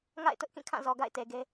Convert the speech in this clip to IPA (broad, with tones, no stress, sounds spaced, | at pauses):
ŋ a̰˦˨ ɪ̯ t ʊ˦ ʔ k ĩ˦˨ kʰ ã˦˨ z ɔ˨ ɡ a̰˦˨ ɪ̯ t e˨ ɡ e˦